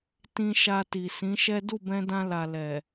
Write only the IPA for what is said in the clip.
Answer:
t ĩ˧ ʃ a˧ t i˨ s ĩ˨˦ ʃ ɛ˦ d u˦˨ b ɛ̃˧ d ã˧ l a˨ l ɛ˨

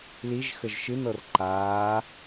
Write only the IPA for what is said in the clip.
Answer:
l i ʒ x ə ʒ ʃ ɨ n ɤ r ǃ aː

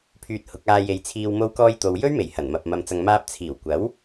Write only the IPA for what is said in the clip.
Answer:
pʰ yː˧ t̚ h ʊ˨˥ k̚ aː˧ j e˨˧ j t͡sʰ iː˧ w m o˧ w k ɔː˧ j t̪ o˨ w j ɵ˥ ɥ m e˨˩ j h ɐ˨˩ n m ɐ˨ p̚ m ɐ˨ m t͡s ɐ˨ ŋ m aː˧ p̚ t͡sʰ iː˨˩ w kʷ ɐ˨˥ w

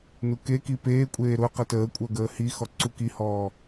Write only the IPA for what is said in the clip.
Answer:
n u k e k i p eː kʷʼ eː ɾ ʊ q ə t əː kʷʼ œ ɡ əː h i x ɔ ǀ u k i h ɔː

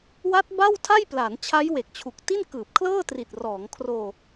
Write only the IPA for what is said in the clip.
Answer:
w a˦˥ t̚ b a˥˩ w tʰ a˥˩ j p l a˩˦ n t͡ɕʰ a˦˥ j w e˨˩ k̚ t͡ɕʰ u˨˩ k̚ t i˥˩ n k ɯː˨˩ p̚ kʰ l ɤː˥˩ t r i˨˩ t̚ r ɔː˩˦ ŋ kʰ r oː˧

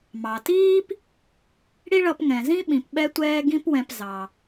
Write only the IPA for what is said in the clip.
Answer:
m ɑ˩ t iː˥ p | ɽ i˥ ɭ ʌ˧ p ŋ ɛ̃˩ z ĩ˥ ɓ ĩ˩ p ɓ ɛ˥ tʷ ɛː˥ ɡ ĩ˥ p w ɛ̃˧ p z ɑ˩

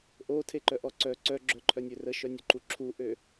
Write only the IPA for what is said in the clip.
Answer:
ʔ o tʰ e ǃ œ ʔ ɔ ǀ œ ǀ œ ɡ͡ǁ œ ǃʰ œ nʲ ø r ə ʃ œ nʲ u ǃ u ǁʰ u ʔ ø

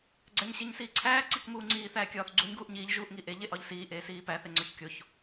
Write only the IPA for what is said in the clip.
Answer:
ɡ͡ǀ æ ɲ ɕ e ɲ s iː ǀʰ æː ǀ i k m uː ŋ͡ǀ iː θ æː kʲ ɒː θ ɡ͡ǀ u ɲ ɡ uː ʔ ɲ iː ʎ ʒ uː ʔ ŋ i ʔ e ʎ e ʔ ɒ ʎ s iː ʔ eː s iː p æ θ e ŋ͡ǀ ɒ ç kʲ o ç

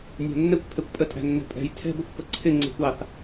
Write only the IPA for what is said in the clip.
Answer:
nʲ æ̤ nː ɛ kʷ pʰ ɛ kʷ pʼ ə tʼ æ̤ nː ɛ̤ pʼ ɛ̤ j tʰ ɛ̤ b ɛ kʷ p ə ǀʰ ɪ ŋ͡ǀ e̤ kʷ ɑ θ

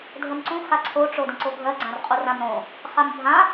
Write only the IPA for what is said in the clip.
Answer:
dʱ ə m ǀ ũ x a ǀʰ o ʈ͡ʂ o d ə̃ ǀ o ɡʱ ɜ ɡ͡ǀ ã r qʼ u r ã m ɾ õ | χ a m bʱ ã

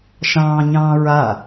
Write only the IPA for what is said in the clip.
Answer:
ʃ ɑ̃ː ɲ ɑ̃ː ɹ a

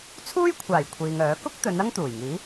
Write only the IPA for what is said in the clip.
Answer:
t͡sʰ uː˥ j kʷʰ aː˨˩ j kʷʰ iː˨ ŋ œː˨˥ k ʊ˥ k̚ t̪ ɵ˨˧ n ɐ˥ ŋ t̪ uː˨˩ j ŋ iː˨˥

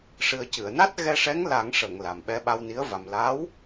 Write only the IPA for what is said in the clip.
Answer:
ʂ ɨ˨˩ ə̯ c ɨ˨˩˨ ə̯ n a˦˥ t̚ ɣ ɛ˧ ʂ ɛ˧˥ ŋ l a˨˩˦ ŋ ʂ ə˨˩˨ ŋ l a˨˩ m ɓ ɛ˧ ɓ a˧ w n i˧˥ ə̯ v a˨˩ m l a˧˥ w

